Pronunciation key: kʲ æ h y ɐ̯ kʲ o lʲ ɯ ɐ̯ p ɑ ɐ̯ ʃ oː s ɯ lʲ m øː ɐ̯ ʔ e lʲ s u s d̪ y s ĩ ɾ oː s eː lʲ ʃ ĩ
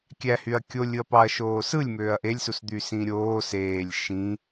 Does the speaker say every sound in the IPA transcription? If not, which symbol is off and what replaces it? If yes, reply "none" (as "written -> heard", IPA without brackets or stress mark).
ɾ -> ɾʲ